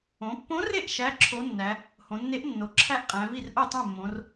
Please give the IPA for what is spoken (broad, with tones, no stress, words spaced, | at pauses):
õ˩˧pːõ˧˥re˥˩ʔ ʃæ˧˥˧ǁʰo˧˥nːæ˩˧ | hõ˩˧nːe˧˥ʔnːo˩˧ ǁʰæ˥˧ʔqʼæ̃˩˧vi˥˩r ʔo˥˩tˤõ˥˩mːõ˩˧r